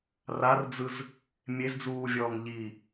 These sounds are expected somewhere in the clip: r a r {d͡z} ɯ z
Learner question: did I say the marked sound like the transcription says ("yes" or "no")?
yes